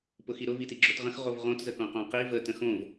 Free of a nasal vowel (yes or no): no